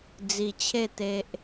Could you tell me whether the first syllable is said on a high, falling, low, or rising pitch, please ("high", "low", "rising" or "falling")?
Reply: low